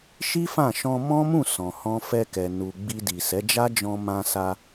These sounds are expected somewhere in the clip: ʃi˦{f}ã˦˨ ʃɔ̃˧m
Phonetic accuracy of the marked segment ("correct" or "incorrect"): correct